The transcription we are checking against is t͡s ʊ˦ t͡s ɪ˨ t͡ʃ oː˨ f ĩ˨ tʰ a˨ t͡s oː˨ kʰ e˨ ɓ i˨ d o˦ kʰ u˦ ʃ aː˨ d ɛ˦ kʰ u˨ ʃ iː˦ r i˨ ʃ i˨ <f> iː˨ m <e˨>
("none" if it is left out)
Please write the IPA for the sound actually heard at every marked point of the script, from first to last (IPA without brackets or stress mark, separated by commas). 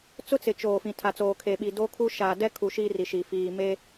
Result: f, e˦